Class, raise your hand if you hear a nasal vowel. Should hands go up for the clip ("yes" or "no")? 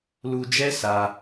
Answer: no